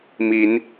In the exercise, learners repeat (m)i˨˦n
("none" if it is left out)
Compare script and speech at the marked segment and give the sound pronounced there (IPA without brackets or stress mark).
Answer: m